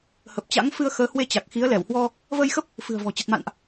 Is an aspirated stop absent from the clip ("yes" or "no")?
yes